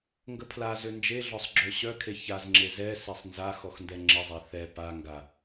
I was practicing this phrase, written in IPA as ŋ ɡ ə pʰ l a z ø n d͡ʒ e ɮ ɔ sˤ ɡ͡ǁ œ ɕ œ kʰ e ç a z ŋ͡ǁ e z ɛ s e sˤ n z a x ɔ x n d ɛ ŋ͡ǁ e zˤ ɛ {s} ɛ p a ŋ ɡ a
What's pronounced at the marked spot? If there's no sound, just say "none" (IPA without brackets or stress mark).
θ